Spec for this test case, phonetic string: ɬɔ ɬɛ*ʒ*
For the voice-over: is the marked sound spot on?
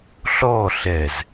no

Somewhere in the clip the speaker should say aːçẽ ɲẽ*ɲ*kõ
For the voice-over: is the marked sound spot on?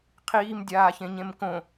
no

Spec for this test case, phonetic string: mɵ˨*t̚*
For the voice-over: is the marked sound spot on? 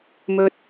yes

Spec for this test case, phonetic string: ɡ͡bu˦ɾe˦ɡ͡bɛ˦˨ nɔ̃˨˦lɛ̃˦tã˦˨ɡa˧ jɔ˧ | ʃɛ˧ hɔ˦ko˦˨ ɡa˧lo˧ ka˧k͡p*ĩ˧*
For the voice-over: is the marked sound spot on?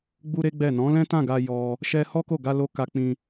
yes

